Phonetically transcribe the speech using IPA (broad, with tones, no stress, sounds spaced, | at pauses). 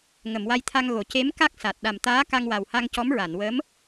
ŋ ə˨˩˨ m w a˧ j t̪ʰ a˧ ŋ ɣ o˨˩˨ c e˧˥ m k a˦˥ k̚ s a˨˩ t̚ ɗ a˨˩ m t̪ aː˧˥ k a˧ ŋ w a˨˩ w h a˧ ŋ c ɔ˧˥ m ɹ a˨˩˨ n w ə˧˥ m